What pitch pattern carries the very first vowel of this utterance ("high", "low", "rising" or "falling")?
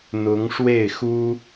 rising